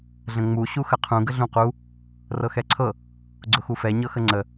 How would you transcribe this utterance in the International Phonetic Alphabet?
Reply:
ɮ ə̃ ŋ͡m u ɕ u x ə qʰ ũ ɡ ə ɮ ũ q u | r ɤ x ɛ ǀʰ ɤ | ɡ͡ǀ ʊ x u f ɛ ɲ ɤ x ə ŋ͡ǀ ə

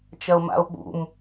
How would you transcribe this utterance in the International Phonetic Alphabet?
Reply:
t͡ʃ ɐ o̯ m a̰ o̯ ɓ ṵ m

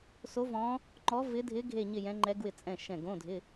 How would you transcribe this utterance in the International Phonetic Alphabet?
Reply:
s o˧˥ v ɔ̃˧˥ | ŋ͡ǃ ɔ˧˥ v ɪ˧˥ dʱ ɪ˧˥ ɡʱ e˥˧ ɲ ɪ˥˧ j ɛ̃˧˥ ŋ͡ǃ ɛ˧˥ ɡ w ɪ˧˩ t͡sʼ ɛ̃˧˩ ʃ ɛ̃˧˩ ɡ õ˧˥˧ dʱ ɪ˧˥˧

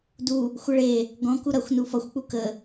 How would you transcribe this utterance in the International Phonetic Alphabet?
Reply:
d u | xʷ ʌ ɭ e | ɡ ɔ̃ k u ɾ ʌ xʷ n u f ʌ xʷ k͡p u k ə

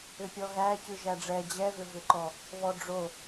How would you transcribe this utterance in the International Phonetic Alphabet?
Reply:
ʏ pʲ ɔ ɣ æ c ʉ ʒ æ ɖ͡ʐ ɛ d͡ʑ ɛ v ʏ v ʏ ǃ ɔ | β ɔ ɖ͡ʐ o

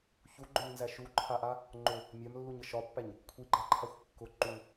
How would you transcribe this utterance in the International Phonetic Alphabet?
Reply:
ç u ɡ͡ǃ ʊ ɲ n z æ ʃ u ǃʰ a ʔ a | ŋ͡ǃ ʊ | mʲ a m lː u ɲ ə ʃ ɒ pː æ ɲ | kʷʰ i ɡ͡ǃ a ǃʰ a xʷ kː ʊ ǃ u

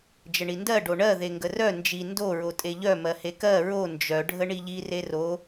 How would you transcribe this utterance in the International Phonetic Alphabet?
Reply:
d͡ʒ ə ɳ i n d ɜ ɖ o ɳ ɜ ð e ŋ ɡ ə r œ n d͡ʒ i n d o ɹ o tʼ e ʎ œ m ɜ h e k ɜ ɹ o n d͡ʒ œ ɖʱ ə ɳ i ʎ i r e r o

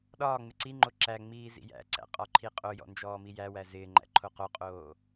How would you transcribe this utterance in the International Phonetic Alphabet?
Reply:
ɗ ɒː ŋ͡m ɪ ǀ i ŋ͡ǃ o ǁ æ ŋ͡m iː z ḭ j æ̰ ǀ æ̰ qʼ ɒ ǃʰ i qʼ o j ɔ̰ n d͡ʒ ɔː m i j æ w æ z ɪː ŋ͡ǃ æ̰ ǃʰ o q o qʼ oː

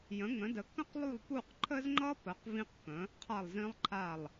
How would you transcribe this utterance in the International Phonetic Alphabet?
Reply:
j ə̃˩˥ ŋ ə̃˩˥ d ə˩˥ k ə̃˥ q lˠ u˥˩ lˠ p u˥˩ q ǃʰ ə˥ z ŋ͡ǃ ʌ˥ p ə˩˥ q v ĩ˥ q k ə̃˩˥ | qʰ a˥˩ lˠ z ĩ˥ lˠ ǃʰ a˥˩ lˠ

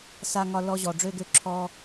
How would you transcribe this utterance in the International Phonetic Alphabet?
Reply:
s a˦ ŋ ɒ˦ l ɔ˦ ʑ ɔ˧ ɖ͡ʐ ø˦ ɡ ø˦ ǁʰ ɔ˦

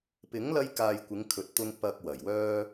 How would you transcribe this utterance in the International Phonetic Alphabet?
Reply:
p ɪ˨˥ ŋ l ɐ˧ j k aː˨ j kʷ ɪ˨˧ ŋ kʰ ɵ˨ t̚ t̪ ʊ˧ ŋ p ɐ˧ k̚ w ɐ˨˩ j w œː˥

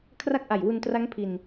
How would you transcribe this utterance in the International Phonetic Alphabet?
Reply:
kʰ r a˦˥ k̚ ʔ a˨˩ j w u˧ n t r a˦˥ ŋ pʰ i˧ n

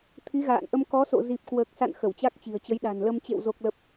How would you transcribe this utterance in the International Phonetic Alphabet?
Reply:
t̪ʰ i˨˦ ɣ a̰ː˧˨ n ʔ ə˧ m k ɔ˨˦ s o̰˧˨ z i˨˩ p̚ k w əː˨˩ k̚ s a̰˧˨ n x ə˧˩ w t͡ɕ a˦˥ k̚ t͡ɕ i̤˨˩ ə̯ t͡ɕ ə˨˦ j ɗ a̤˨˩ n l ə˧ m t͡ɕ ḛ˧˨ w z o˨˩ k̚ l ə˨˩ p̚

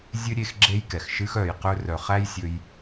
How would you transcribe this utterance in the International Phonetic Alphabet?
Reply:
zʲ ɨ˦ ɾʲ e˦ x ɡ͡ǁ e˦ j k ɛ˨ x ʃ ɨ˧ x œ˨ j q ɵ˧ r œ˨ χ æ˦ j sʲ ɵ˧ j

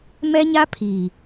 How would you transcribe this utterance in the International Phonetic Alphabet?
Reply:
m ɛ˦ ɲ a˦ pʰ iː˨

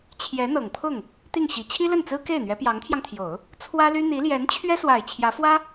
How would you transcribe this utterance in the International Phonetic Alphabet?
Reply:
t͡ɕʰ j ɛ˧˥ n̪ ɤ˨˩ ŋ pʰ ʊ˥˩ ŋ | t̪ i˥˩ ŋ ɕ i˨˩ t͡ɕʰ i˥ l ə˥˩ n t͡s ɹ̩˥ k e˥˩ ɪ̯ n̪ ɥ ɛ˧˥ p j ɑ˧˥ ŋ t̪ʰ j ɑ˧ ŋ t̪ʰ j o˨˩˦ ʊ̯ | t͡sʰ w ä˥ l y˥ n̪ i˧˥ l j ɛ˧˥ n t͡ɕʰ ɥ ɛ˥ s w a˨˩ ɪ̯ t͡ɕʰ j ä˧˥ f w ä˥

